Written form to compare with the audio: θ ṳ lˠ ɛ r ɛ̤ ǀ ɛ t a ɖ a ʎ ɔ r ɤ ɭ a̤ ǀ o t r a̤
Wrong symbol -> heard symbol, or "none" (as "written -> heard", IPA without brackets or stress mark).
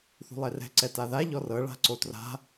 ɖ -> ð